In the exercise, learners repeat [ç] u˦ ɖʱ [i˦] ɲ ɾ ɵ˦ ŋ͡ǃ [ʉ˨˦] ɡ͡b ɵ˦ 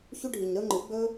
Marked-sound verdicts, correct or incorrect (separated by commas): correct, incorrect, incorrect